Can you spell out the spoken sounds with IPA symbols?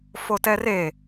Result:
fotɛre

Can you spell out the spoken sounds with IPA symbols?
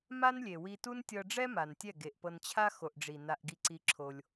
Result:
ma˦nlʲe˨wi˧tu˦n tʲɤ˧ɖ͡ʐɛ˦ ma˨ntʲɛ˦˨ ɡe˨ʔpɤ˧nt͡ɕʰa˦ xo˨ʔɖ͡ʐi˨ na˧ʔɡi˧ǀi˧ ǁʰo˧lʲ

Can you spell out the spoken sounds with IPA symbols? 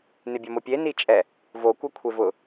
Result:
nɪbʲɔmopʲe nit͡ʃʼɛ | vo kʷakʷʰevʊ

